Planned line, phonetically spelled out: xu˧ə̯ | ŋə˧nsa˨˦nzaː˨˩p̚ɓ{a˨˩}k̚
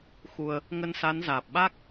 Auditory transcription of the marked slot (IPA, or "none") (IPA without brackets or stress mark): a˦˥